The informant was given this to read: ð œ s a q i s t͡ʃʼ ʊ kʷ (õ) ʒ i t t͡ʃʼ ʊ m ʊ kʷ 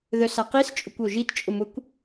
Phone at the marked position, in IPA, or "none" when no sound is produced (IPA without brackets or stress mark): o